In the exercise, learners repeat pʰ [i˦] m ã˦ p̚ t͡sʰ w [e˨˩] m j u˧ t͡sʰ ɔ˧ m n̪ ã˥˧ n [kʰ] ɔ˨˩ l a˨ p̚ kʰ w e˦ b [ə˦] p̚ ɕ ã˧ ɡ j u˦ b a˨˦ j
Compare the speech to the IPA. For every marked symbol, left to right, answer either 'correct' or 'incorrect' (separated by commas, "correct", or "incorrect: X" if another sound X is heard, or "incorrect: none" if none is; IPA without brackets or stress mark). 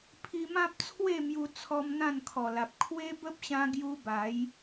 incorrect: i˧, incorrect: e˥˧, correct, correct